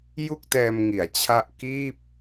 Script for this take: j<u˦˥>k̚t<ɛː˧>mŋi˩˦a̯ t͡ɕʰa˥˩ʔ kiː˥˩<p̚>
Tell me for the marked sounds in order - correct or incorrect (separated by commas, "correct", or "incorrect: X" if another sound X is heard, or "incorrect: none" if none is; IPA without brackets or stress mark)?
incorrect: u˥˩, correct, correct